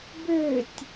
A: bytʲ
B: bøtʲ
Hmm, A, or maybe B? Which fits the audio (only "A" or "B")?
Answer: B